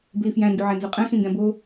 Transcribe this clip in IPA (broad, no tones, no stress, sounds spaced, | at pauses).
b l i f j æ̃ n d u ʕ æ n z o qʼ æ̃ x ĩ n d æ̃ b o